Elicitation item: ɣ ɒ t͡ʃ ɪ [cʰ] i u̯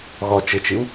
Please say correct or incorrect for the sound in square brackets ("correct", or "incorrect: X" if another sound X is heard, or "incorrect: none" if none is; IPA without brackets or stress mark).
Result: incorrect: t͡ʃ